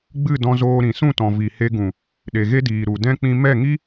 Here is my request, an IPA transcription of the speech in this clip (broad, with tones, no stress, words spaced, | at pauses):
ɡ͡bɨ˦˨ dɔ̃˧zoː˧ ɾĩ˨sũ˦˨tɔ̃˨ vi˨he˧ɡũ˨ | ɗe˨ɣe˦diː˨ ɾu˨dɛ̃˦ k͡pĩ˧mɛ˦˨ŋi˦